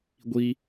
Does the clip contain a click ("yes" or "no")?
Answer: no